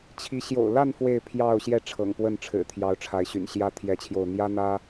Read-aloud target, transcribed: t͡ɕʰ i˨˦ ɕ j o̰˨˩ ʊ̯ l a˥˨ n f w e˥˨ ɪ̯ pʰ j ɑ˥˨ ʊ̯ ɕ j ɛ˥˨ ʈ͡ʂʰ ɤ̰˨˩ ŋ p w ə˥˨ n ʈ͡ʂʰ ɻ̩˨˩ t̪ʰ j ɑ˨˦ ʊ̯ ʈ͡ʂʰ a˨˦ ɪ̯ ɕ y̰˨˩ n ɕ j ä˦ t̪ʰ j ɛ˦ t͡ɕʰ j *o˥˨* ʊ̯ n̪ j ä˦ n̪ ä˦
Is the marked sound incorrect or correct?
correct